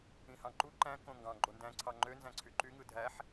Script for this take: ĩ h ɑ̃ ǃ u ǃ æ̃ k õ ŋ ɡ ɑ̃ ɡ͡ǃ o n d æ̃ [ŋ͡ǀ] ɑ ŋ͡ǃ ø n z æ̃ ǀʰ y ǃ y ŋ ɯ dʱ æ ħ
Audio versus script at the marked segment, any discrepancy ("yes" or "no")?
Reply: yes